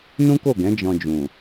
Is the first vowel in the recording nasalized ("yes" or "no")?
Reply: yes